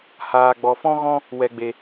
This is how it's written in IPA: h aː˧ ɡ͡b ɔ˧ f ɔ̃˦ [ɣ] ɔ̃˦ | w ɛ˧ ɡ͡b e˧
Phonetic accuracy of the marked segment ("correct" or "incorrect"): correct